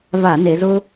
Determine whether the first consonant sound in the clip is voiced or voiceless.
voiced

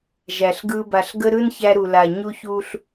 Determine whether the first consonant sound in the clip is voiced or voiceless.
voiced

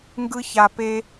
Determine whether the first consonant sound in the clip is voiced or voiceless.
voiced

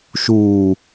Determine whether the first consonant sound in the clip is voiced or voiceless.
voiceless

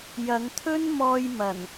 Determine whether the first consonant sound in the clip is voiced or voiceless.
voiced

